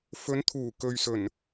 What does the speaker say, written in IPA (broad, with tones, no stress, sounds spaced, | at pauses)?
f ɵ˨˧ n t̪ʰ uː˨˩ k ɵ˨ ɥ s ɵ˨˩ n